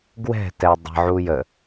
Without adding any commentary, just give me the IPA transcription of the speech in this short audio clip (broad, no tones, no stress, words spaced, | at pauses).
ɡwɛ̤ tɛdˤə̤ ʕujə